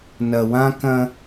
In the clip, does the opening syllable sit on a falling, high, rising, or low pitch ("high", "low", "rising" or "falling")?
low